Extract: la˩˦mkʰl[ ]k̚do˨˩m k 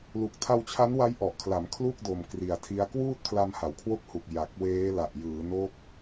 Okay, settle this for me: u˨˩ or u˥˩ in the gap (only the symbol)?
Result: u˥˩